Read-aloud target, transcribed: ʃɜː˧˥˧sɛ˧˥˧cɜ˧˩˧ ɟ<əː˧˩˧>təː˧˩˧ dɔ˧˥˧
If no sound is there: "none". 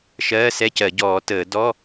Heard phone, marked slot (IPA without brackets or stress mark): ɔː˧˩˧